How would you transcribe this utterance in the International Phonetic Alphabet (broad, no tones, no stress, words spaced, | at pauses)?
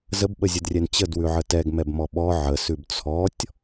zəbɓəzʲədrʲɛn t͡ɕədwʉʕə tɛɡmɛbmɔ ɓɔ ʕəsʉb t͡sʰɔtʲ